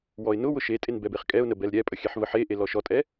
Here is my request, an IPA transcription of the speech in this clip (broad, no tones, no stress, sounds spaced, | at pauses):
w ɔ ɪ̯ n ʊ w ʊ ʃ e tʼ e n b ɛ b e χ kʼ ɛ ʊ̯ n ə b ɛ l ɾʲ ɛ pʼ ə xʲ ɛ ħ v ə ħ e ʔ e l ɔ ʃ ɔ tʼ ɛ